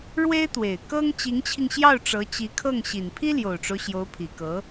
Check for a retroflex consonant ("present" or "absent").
present